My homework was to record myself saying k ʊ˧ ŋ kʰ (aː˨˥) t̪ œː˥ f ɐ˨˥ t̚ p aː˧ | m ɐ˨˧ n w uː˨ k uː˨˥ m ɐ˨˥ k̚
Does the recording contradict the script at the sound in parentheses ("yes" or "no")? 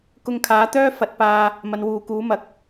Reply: no